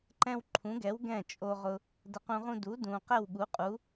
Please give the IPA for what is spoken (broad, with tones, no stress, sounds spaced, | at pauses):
ǃ ɛ̃˥ w ǃʰ ũ˩˥ ɡ ɛ˩˥ w ɡ ɛ̃˥˩ t͡ʃʼ o˧ ʁ ʊ˧ | d ə˧ q ũ˧ ʁ ũ˥ d u˩˥ d ũ˩ q ɛ˥˩ w ɠ u˩˥ qʼ u˩˥